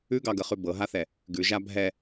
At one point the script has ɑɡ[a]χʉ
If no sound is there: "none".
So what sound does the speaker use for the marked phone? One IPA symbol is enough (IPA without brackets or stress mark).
ə